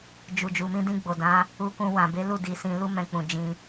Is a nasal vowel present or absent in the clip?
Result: present